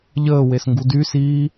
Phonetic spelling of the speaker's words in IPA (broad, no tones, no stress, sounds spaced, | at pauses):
ʎ əː w e s ŋ ɡ u d y s iː